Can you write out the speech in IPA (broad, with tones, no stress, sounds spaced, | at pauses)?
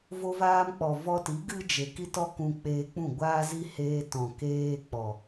v o˧ v aː˧ m k͡p ɔ˨ v ɔ˧ t i˨˦ ɡ ɨ˦ d͡ʒ e˨ k i˦ t ɔ˦ k ũ˧ k͡p eː˧ k͡p ũ˦˨ ɡʷ aː˦ z i˦ h eː˧ t ɔ̃˨ k eː˦ k͡p ɔ˨